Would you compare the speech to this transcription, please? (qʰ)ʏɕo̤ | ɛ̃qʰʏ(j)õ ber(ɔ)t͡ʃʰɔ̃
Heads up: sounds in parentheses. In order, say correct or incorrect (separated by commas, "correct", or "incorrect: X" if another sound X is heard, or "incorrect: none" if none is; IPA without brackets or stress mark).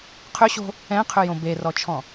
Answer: correct, correct, correct